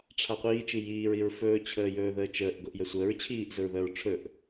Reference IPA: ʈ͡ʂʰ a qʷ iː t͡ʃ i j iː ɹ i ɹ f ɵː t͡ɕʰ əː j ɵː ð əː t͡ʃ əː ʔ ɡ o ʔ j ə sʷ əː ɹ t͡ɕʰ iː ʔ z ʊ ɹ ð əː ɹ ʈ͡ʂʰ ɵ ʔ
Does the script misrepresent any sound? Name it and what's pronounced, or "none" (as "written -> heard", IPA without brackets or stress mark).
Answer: none